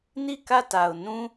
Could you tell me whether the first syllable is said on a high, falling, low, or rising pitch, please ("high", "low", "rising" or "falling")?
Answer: falling